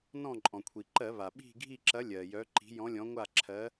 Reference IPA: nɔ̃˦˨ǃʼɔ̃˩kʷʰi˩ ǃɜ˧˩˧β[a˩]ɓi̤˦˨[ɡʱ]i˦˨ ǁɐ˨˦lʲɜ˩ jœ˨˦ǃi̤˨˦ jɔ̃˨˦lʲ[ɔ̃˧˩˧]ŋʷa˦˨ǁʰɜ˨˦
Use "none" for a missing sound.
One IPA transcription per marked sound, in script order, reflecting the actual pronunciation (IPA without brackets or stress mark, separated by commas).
a˩, ɡʱ, ɔ̃˨˦